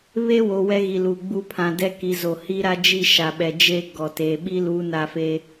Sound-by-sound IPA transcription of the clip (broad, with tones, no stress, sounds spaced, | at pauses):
β e˦ w o˨ w ɛ˦ ɣ i˨ l u˨ ɡ͡b u˦ pʰ ã˨ d ɛ˦ k i˨ z o˨ h i˦ ɾ a˦ d͡ʒ i˦˨ ʃ a˨ ɓ ɛ˨ d͡ʒ e˦ ɡ ɔ˨ t e˨ ɓ i˦ l u˨˦ n a˦ f e˦